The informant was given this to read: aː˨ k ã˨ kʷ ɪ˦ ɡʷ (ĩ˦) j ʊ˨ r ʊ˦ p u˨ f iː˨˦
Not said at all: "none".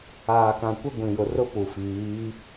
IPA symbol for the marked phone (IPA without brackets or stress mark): ĩ˨